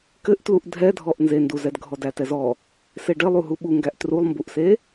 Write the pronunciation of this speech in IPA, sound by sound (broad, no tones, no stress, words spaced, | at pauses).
kɘʔtluʔ dʱɛdʱɔʔ nzenduzɛd ɡʱɔdætɛzɔ | seɖɘ lˠuɦuɓuŋɡæʔ trulˠmbuʔse